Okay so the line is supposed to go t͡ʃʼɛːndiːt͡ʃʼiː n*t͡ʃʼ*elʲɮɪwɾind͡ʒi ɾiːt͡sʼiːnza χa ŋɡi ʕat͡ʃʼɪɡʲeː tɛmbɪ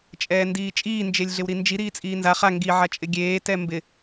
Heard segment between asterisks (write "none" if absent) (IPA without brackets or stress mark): d͡ʒ